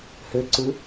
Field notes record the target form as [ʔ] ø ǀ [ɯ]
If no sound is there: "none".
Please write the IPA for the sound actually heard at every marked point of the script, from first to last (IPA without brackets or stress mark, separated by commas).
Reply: h, ɯ